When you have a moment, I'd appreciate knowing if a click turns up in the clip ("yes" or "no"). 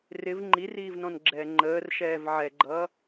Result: yes